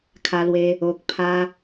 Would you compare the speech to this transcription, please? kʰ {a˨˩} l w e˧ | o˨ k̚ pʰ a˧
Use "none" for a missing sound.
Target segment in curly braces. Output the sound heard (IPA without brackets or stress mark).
a˧